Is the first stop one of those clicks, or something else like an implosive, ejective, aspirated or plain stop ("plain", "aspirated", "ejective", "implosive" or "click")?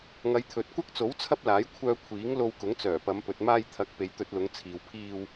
aspirated